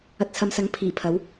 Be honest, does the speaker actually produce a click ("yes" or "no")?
no